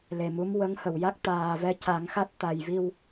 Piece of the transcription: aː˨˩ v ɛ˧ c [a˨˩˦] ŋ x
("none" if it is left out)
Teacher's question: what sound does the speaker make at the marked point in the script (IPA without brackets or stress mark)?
a˨˩˦